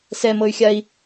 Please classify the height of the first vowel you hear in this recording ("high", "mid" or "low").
mid